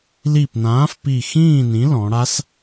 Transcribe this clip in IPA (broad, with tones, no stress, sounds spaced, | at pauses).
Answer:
l i˧˩ p n ãː˨˥ f p i˧˩ x ĩː˥˨ n ĩ˨˥ l ɔ̃˩˧ ɽ a˦˥ s